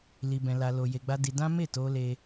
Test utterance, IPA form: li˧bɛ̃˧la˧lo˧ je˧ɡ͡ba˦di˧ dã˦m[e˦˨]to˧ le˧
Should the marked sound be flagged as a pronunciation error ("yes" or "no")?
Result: no